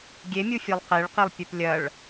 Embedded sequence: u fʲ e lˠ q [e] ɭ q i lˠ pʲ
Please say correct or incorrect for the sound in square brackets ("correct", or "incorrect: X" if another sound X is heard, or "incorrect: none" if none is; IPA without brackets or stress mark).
correct